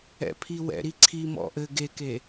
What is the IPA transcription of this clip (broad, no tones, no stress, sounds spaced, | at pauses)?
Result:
ɛ̰ pʰ i w ɛ̰ ɾ i ǀʰ i m ɔ̰ ʔ ɘ ɡ e k e